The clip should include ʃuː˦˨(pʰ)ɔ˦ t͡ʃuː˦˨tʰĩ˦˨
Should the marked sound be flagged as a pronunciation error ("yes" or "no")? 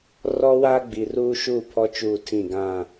no